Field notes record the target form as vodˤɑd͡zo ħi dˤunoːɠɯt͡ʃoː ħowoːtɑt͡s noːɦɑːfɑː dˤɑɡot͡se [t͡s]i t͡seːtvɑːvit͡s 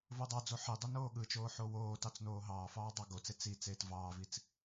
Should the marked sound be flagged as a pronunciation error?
no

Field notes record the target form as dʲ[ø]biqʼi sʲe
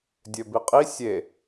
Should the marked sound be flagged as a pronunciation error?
no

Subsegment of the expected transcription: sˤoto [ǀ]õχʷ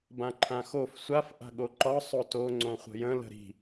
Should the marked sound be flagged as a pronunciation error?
yes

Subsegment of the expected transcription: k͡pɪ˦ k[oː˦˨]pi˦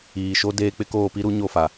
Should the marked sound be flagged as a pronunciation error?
no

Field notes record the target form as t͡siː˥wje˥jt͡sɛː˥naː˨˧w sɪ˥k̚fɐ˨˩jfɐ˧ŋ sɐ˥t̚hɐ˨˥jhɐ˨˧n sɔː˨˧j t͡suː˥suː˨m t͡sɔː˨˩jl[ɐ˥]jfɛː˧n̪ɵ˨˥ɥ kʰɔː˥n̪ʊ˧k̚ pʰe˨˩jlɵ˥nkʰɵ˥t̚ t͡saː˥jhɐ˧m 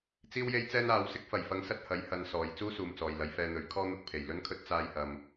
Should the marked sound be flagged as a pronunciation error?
yes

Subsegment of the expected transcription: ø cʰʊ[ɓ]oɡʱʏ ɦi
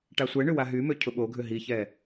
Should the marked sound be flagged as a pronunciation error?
no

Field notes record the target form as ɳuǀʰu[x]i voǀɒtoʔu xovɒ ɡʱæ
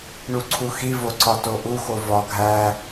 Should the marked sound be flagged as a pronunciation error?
no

